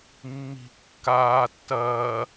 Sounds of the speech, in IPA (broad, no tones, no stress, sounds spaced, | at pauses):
mː i̤ kː aː tː ɐː